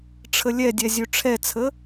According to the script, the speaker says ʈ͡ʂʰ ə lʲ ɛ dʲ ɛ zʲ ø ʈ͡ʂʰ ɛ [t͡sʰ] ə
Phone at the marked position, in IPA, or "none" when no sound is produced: t͡sʰ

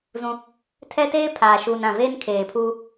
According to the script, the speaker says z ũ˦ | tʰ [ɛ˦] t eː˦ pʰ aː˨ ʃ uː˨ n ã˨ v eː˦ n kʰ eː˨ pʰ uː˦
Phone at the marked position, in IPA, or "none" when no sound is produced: ɛ˦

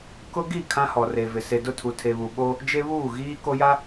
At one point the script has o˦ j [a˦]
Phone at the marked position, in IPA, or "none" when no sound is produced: a˦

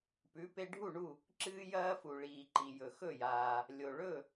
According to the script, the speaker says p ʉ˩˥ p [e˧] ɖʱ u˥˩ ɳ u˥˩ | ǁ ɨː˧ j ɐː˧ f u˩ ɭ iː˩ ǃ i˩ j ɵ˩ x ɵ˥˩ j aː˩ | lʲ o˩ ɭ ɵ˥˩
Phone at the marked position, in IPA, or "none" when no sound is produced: e˧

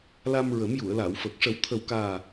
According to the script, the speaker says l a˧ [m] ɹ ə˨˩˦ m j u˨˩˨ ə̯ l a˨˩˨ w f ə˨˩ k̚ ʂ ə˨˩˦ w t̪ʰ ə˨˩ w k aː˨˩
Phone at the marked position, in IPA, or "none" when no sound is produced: m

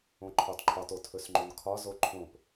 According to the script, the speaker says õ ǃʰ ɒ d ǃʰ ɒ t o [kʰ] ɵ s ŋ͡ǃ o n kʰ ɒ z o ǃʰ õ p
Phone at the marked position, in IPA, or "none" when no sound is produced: tʰ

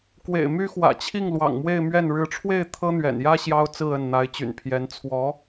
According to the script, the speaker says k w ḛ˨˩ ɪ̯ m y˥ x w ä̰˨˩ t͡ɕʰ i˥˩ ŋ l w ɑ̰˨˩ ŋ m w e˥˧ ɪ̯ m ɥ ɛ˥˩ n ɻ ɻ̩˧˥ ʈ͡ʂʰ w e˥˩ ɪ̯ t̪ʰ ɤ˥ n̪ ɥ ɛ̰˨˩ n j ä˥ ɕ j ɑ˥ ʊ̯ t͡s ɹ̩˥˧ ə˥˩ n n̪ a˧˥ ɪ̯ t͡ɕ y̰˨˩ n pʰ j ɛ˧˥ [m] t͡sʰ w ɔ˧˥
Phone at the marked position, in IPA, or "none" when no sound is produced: n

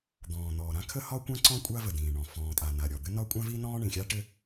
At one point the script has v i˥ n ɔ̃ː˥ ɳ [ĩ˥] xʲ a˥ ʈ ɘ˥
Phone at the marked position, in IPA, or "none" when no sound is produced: ĩ˩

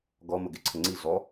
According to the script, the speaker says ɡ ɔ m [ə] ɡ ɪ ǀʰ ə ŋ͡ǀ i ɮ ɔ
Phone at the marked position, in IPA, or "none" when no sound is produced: ə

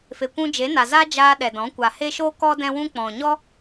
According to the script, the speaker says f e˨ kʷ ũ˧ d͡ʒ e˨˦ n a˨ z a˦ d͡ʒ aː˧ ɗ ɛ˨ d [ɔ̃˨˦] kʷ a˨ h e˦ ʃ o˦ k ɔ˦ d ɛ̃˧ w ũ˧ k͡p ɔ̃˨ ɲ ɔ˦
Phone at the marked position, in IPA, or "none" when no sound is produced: ɔ̃˨˦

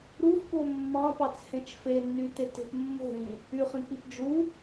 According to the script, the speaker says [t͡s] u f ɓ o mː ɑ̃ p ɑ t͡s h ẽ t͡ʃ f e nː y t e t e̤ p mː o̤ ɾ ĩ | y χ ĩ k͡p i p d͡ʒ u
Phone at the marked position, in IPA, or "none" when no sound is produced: ɾ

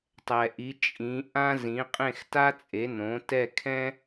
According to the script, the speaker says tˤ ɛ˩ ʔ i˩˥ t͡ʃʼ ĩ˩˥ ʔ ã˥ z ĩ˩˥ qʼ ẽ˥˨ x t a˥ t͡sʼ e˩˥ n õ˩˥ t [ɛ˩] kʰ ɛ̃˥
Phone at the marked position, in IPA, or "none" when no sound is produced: ɛ˥˨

